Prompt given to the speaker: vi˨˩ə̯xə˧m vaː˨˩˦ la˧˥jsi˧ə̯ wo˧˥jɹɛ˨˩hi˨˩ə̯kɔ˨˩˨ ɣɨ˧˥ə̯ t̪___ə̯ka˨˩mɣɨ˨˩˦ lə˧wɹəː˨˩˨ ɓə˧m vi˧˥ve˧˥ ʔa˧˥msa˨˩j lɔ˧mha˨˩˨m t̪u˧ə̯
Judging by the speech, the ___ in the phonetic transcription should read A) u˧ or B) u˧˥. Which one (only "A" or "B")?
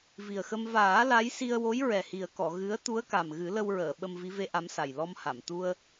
B